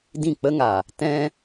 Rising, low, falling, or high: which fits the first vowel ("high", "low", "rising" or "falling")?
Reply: falling